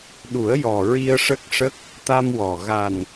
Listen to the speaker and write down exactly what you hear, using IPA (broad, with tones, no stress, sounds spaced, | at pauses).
ɗ u˨˩˦ ə̯ j ɔ˨˩ ɹ i˧ ə̯ ʂ ə˦˥ k̚ ʂ ə˦˥ k̚ | t̪ a˧ m w ɔ˨˩ ɣ a˨˩ n